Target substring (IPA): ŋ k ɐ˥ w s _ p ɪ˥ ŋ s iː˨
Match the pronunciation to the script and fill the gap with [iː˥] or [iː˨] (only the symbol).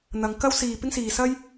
iː˨